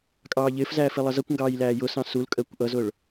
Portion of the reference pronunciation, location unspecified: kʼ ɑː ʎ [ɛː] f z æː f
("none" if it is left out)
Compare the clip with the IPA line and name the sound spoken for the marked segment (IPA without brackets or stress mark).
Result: ɪː